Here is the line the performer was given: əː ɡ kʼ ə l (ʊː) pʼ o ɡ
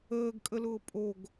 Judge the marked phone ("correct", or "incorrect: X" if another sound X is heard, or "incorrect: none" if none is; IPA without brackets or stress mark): correct